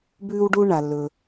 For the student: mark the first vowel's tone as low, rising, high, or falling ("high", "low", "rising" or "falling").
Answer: high